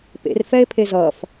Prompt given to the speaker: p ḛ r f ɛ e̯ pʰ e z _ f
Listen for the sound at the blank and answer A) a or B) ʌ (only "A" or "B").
B